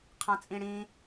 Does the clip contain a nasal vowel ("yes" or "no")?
yes